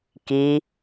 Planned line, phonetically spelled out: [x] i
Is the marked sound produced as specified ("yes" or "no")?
no